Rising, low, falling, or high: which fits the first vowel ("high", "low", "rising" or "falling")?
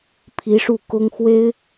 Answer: rising